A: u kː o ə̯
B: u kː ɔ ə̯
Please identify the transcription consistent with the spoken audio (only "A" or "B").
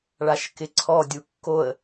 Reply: A